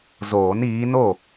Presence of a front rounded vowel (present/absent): absent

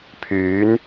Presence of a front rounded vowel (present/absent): present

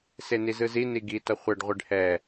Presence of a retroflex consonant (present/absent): present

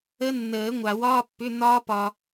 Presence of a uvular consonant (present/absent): absent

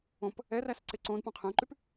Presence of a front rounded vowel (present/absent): present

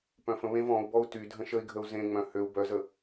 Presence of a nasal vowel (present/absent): present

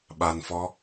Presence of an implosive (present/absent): present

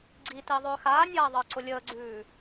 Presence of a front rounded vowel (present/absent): present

